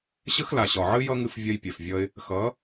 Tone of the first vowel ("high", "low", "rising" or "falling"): high